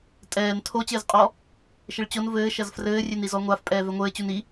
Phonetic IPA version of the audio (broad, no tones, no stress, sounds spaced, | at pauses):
tʼ ɛː n tʰ o t͡ɕ ɘː z qʼ ɔ | ʃ ɘ ɭ t͡ɕ o n v ɘː ʃ ɐ z f r ɘː rʲ e n i z ɔ ŋʷ a f pʼ ɛː v ɛ ŋʷ ɘː t͡ɕ u n i